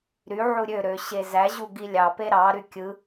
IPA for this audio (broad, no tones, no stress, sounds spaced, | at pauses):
ɾ y ʕ u ɾʲ ø ɾ ø ɕ e z æ ʑ u ɡ i lʲ ɑ p e ɾ ɑ ɾ y kʲ ɯ